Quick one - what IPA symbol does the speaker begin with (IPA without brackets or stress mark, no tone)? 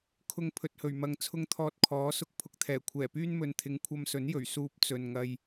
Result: kʰ